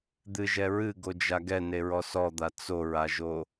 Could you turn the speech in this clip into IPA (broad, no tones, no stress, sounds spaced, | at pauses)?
d̪ ɨ ʒ ɛ ɹ ɨ ɡ o d͡ʒ a ɡ ɛ n e ɹ ɔ s ɔ d̪ a t͡s o ɹ a ʒ o